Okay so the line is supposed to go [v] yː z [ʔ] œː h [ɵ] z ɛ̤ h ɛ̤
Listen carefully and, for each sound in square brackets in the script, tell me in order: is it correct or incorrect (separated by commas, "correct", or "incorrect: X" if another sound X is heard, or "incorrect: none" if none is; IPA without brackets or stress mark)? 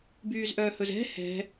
incorrect: b, correct, correct